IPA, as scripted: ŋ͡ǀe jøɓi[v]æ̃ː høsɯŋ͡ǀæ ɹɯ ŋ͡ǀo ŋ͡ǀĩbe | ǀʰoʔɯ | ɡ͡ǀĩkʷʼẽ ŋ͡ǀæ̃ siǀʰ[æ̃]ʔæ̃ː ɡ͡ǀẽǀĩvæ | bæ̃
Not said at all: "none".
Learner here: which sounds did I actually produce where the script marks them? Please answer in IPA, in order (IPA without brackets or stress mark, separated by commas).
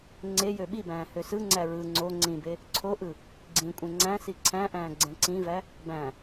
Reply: b, æ̃